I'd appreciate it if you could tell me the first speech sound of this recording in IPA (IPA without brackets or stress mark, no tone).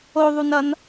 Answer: o